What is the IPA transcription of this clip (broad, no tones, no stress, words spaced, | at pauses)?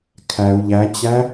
kʰæu̯ ʎæt͡ɕæ